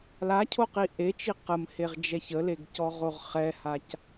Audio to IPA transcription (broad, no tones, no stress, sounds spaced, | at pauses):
l a cʰ o q i ʔ e t͡ʃ i q ə m h e ʁ d͡ʒ ɛ ç ə l e ɡ c ɔ ʁ o ʁ χ ɛ h a c